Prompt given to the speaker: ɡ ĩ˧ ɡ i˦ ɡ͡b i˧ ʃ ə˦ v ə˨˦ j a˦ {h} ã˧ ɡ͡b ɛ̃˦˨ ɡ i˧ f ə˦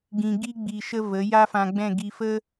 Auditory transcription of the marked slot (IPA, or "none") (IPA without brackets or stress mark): f